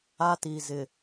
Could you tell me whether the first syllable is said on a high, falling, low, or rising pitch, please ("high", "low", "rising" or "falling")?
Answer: high